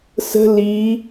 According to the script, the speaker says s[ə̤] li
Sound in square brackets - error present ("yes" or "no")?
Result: no